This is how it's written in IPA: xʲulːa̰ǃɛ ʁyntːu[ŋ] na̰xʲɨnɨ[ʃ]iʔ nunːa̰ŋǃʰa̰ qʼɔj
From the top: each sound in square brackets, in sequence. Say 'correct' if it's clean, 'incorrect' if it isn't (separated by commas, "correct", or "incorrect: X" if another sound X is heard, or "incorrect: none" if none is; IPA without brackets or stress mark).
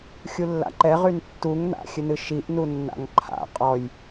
correct, correct